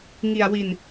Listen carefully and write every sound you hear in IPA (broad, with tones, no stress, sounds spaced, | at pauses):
ŋ i˧ a̯ w i˧ n